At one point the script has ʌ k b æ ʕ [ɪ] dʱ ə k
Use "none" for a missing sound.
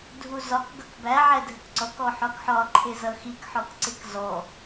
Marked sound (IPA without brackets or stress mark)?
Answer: ɛ